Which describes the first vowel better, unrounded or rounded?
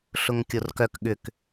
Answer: rounded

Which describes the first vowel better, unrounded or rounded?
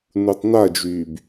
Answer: rounded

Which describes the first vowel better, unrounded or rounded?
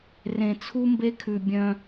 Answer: unrounded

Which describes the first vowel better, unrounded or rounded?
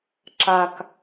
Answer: unrounded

